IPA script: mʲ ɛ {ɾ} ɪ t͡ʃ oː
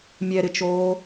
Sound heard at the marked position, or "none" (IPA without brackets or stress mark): ɾ